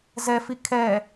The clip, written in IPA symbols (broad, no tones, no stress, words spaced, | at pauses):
zɛfi kʰɛ